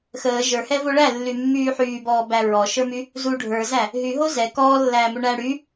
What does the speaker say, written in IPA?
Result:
xəː ʒə˞hɛvo ɭælːymːyː ħyːbɔːbæ ɹɔʃə˞my | zu ɖʱə˞zæ | ɦyɦo zɛ kɔːlːæːmu ɳæ ɽy

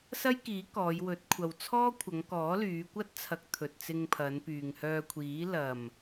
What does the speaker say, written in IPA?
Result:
sɐ˥j kiː˨˥ kɔː˨˧jwɵ˨˥t̚ kʷʰɐ˨wt͡sʰɔː˥kʷʰɐ˨˧ŋkɔː˨˥ lyː˨˧kʷɐ˥t̚t͡sʰɐ˨˥k̚ t̪ʰɵ˨t̚t͡sɪ˧ŋpʰɐ˨˧npyː˨ŋ hœː˧kʷʰiː˨˥ lɐ˨˩m

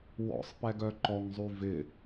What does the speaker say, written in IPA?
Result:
wɔ̰sˤpɛɡœ ǃɔŋzˤy vɪ

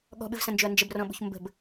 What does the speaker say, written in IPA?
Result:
ɠɔ̤ɓɨvsɐ̃nd͡ʒɵɐ̯ nd͡ʒəbrɔ̃ɓṳç mbə̤b

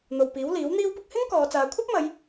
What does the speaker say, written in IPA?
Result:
n̪o˨wpiː˨˥w liː˨˥wn̪iː˥wpʊ˥k̚ hɪ˥ŋ kɔː˨˧t͡saː˨˧ kʷʰɐ˥p̚mɐ˨˧j

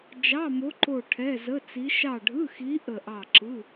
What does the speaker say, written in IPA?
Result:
d͡ʒɑ˧˥˧mo˧˥ ǃo˦˨ʈʰɛ˧˥˧zə˧˥˧t͡si˧˥ ʃɑ˦˨ɖʱɯ˧˥˧xi˧˥ ʔə˦˨ʔɑ˦˨ǁɯ˧˥˧

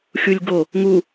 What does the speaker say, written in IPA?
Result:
xʲulʲɡo | ŋu

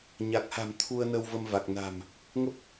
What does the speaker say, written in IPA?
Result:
ɲa˨˩k̚ha̤˨˩m t̪ʰu˧ə̯nə˧w və˧mva˨˩k̚na̤˨˩m | ŋə˦˥p̚

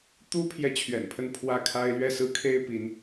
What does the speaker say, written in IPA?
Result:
t̪u˥ pʰjɛ˥˩t͡ɕʰɥɛ̰˨˩npʰə˥˧n pʰwä˥˩kʰa˥ɪ̯ lɥɛ˥˩sɹ̩˥kʰe˥ɪ̯ pi˧˥n

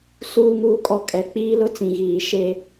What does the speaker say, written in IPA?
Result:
suː˦ŋuː˦kʼɔ˦kʼɛ˨ k͡piː˦lʊ˦t͡sĩ˨ ɣiː˨ ʃe˦

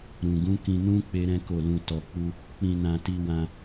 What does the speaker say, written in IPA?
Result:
ɾũ˨ɡũ˨˦kĩ˧nũ˦ k͡pe˦ɾɛ̃˦ko˦˨ lũ˧tɔ˧k͡pu˦ | k͡pĩ˧nã˧ ti˧wã˧

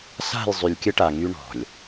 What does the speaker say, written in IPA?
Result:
sa̤˦˨j zˤy˨lʲkʲə˦ʈa˨ ŋy˦ɳɔ̤˨lʲ

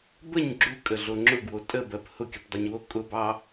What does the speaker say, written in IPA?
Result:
bəɲ ɡ͡ǁukʼəɮo ŋ͡ǁʊɡwo tʼəbɜp hʊkʲəpdˤoɲwo kʼʊbɑ

